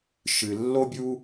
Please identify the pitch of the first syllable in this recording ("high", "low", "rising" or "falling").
low